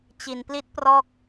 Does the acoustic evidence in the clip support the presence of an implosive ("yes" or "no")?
no